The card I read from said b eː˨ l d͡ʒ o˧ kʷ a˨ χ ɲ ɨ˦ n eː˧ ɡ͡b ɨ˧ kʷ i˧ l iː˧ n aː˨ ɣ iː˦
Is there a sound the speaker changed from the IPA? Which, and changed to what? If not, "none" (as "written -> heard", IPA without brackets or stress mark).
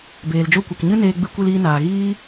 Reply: χ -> k